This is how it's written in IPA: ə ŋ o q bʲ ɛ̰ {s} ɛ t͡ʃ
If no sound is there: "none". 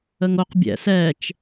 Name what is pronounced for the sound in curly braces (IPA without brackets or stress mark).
s